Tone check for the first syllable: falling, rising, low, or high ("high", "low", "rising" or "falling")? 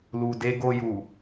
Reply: low